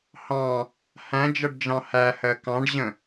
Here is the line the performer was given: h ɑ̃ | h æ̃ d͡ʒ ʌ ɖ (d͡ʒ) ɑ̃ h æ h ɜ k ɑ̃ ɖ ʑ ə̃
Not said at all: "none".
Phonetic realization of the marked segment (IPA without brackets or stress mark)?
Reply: d͡ʒ